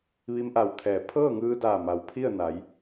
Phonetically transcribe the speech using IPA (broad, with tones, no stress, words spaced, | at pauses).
ʋi˧mʔa˧˩wt̪ʰɛː˩ pʰɤː˥˨ŋɯː˧daː˧˩ ma˩wpʰi˥˨ə̯na˩˧j